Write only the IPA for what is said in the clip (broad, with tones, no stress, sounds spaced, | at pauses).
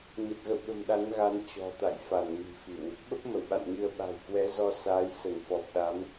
ɲ ə˨˩ t̚ ɣ ə̰˧˨ w ɓ ə̤˨˩ m ɗ a˨˦ n ɣ a˨˦ n t͡ɕ ɔ̤˨˩ t̪ a̰˧˨ j f a˧˩ n m i̤˨˩ f i˧˩˨ w | ɓ ə˦˥ p̚ m ə˧˩ w ɓ a̰˧˨ n ɲ ɨ˧ ə̯ ɓ a̤˨˩ j k w ɛ˨˦ z ɔ˧ s aː˨˦ j s ə˧˩ n f ɔ˨˩ p̚ ɗ a˨˦ m